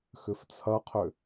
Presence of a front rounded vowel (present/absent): present